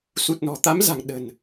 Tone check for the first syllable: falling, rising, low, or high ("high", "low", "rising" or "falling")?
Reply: low